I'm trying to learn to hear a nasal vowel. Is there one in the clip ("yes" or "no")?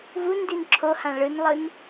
yes